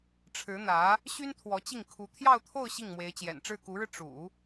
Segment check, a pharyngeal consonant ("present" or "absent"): absent